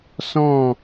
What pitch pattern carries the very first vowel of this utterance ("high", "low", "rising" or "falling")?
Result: falling